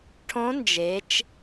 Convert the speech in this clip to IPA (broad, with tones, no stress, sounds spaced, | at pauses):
ʈʰ õ˧˥ n d͡ʒ e˩˧ t͡ʃ